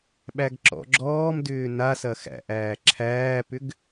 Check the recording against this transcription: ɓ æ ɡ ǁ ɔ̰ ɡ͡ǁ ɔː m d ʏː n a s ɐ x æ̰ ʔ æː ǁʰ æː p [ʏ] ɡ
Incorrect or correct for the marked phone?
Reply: correct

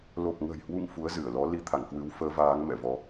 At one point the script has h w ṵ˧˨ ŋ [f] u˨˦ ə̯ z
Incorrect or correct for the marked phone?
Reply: correct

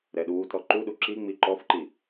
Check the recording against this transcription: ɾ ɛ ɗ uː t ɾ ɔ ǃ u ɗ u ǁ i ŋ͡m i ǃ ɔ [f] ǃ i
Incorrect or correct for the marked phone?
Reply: correct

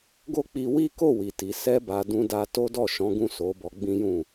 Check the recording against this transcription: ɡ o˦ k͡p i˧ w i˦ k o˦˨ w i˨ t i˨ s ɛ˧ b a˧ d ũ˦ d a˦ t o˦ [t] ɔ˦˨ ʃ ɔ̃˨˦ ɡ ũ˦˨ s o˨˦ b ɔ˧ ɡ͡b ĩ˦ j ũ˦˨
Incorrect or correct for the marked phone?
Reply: incorrect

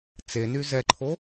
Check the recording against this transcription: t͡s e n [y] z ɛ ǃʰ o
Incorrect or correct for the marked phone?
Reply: correct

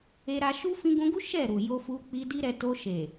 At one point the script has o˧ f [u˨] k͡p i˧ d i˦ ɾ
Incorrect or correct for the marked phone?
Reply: incorrect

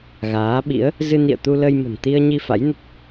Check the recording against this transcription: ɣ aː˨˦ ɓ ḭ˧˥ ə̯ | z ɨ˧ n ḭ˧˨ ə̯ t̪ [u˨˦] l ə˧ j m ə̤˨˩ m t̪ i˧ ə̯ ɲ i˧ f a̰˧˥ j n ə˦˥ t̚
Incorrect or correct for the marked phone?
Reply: incorrect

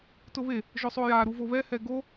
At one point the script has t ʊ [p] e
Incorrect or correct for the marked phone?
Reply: incorrect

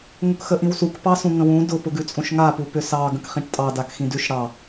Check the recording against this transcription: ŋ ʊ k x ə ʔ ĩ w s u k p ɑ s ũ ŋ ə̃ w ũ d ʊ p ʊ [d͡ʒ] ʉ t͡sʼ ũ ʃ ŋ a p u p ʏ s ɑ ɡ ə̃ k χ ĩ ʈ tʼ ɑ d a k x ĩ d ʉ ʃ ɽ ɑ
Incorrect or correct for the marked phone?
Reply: incorrect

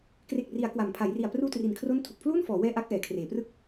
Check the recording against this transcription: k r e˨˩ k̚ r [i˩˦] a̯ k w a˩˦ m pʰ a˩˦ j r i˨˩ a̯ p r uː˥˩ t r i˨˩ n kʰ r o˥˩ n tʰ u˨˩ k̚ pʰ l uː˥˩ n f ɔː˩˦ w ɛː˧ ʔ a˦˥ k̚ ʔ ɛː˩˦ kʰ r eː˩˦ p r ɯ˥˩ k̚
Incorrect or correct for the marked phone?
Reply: correct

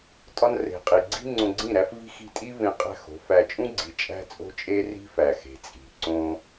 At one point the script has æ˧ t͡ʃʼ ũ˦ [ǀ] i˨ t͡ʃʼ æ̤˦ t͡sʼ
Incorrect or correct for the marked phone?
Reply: incorrect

